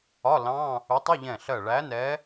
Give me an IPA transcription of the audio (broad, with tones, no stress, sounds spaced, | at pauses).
ɒ˧˥˧ l ɑ̃˧˥˧ | u˨˥ tˤ ʊ˧˥˧ ʎ ɛ̃˧˩ ɬ ɜ˧˩ ɭ æ˨˥ n ɛ˨˥